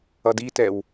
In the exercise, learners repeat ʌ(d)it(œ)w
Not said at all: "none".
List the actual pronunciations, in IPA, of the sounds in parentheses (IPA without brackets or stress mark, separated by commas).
d, ɛ